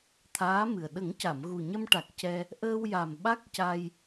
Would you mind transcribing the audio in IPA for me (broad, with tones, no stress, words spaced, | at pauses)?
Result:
t̪ʰaː˧˥mɨ˨˩ə̯ ɗə˨˩˦ŋca˨˩˨m ɣu˨˩ɲə˧mʈa˨˩k̚ cɛ˧ | ʔəː˧wja˨˩m ɓa˦˥k̚ca˧j